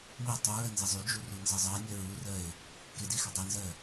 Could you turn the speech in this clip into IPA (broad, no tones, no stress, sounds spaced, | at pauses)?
m i tˤ y ɹ ɜ n z ɪ zˤ y d͡ʒ u r u n z ə zˤ ɜ nʲ ɜ ɹ u r ɜ ɪ̯ | k ɪ d i x ɪ dˤ ɜ n z ɜ